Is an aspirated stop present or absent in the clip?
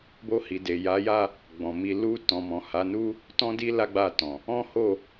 absent